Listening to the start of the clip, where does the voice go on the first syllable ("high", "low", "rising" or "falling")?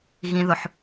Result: low